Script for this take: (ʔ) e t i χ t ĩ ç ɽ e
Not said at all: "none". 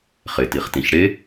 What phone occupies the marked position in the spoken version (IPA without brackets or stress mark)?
χ